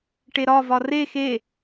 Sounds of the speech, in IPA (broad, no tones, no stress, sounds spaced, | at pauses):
ʈ e ɾ ɒ v ɒ r e x e